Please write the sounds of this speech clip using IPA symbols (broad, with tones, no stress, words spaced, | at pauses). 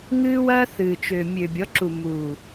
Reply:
ŋɨː˦wɐː˦θɨː˨t͡ʃø˨ mʲø˨bʲɔ˨˦ǁu˨ muː˨